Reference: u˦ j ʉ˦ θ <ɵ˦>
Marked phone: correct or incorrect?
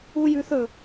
correct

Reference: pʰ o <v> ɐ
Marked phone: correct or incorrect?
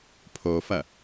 incorrect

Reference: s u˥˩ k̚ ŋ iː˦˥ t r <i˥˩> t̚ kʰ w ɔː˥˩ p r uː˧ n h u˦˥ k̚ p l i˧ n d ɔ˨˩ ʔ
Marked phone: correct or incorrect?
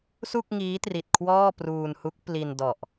incorrect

